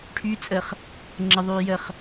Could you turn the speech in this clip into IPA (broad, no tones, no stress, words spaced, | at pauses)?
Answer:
ʈʰy t͡sʼəχ | ŋ͡ǁəðˤyː jəχ